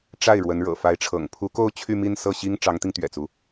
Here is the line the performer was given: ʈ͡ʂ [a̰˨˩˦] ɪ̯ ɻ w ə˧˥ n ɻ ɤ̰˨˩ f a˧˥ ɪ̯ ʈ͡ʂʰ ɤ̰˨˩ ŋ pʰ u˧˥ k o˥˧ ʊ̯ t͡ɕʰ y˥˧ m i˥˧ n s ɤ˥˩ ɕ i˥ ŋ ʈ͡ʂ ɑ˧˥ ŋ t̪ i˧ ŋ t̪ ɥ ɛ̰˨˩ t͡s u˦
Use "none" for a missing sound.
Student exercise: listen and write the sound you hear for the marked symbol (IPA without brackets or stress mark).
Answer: a˥˩